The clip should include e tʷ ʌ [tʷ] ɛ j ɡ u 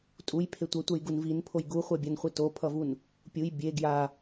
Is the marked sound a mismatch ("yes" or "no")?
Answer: no